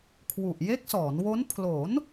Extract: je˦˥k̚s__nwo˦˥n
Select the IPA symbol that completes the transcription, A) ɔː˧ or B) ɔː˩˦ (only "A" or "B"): B